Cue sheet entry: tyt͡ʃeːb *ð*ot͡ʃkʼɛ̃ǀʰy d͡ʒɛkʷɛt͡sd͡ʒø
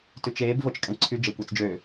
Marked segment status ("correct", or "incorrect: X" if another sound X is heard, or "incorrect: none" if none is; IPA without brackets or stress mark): incorrect: v